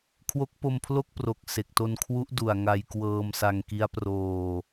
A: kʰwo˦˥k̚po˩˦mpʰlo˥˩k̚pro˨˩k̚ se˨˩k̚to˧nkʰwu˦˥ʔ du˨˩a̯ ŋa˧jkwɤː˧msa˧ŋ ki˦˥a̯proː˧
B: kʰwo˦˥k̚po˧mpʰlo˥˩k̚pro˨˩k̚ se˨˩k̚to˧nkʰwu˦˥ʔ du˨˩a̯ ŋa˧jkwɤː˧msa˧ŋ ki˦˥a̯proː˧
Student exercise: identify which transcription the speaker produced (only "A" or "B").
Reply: B